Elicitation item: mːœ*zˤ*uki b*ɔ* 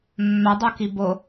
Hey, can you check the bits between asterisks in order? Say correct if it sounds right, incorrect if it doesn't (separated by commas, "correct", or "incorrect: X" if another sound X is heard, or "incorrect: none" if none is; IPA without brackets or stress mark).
incorrect: dˤ, incorrect: o